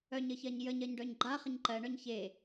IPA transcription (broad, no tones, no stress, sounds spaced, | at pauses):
œ ɲ ə ç ɜ ɲ j ə ɲ ɜ ɲ ɖ œ ɲ ɡ͡ǃ a χ ə ɲ ǃ ɜ ɳ œ ɲ ç e